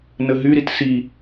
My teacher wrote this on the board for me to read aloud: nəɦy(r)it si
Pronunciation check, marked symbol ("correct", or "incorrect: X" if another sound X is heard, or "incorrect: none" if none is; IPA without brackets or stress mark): incorrect: ɾ